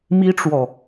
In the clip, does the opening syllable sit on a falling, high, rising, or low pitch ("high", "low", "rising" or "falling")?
high